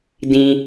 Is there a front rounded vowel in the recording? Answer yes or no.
no